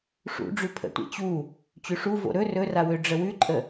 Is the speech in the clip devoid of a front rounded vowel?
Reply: no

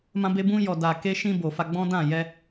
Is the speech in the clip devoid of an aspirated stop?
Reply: yes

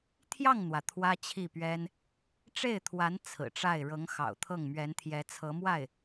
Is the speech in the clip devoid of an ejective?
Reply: yes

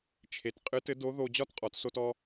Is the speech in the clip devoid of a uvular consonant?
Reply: no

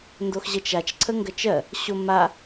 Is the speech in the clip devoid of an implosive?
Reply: yes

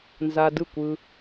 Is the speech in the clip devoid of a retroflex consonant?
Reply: yes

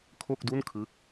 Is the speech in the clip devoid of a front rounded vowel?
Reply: yes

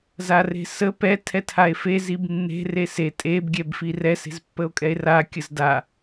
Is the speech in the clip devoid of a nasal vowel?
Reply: yes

